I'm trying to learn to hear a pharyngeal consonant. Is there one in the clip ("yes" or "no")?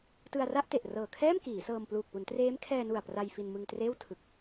no